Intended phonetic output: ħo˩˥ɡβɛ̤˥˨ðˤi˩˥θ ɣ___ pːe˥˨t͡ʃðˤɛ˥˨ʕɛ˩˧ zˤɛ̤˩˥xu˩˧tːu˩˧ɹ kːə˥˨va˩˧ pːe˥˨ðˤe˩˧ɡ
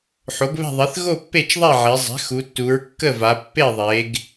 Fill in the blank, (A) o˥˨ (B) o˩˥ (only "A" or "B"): A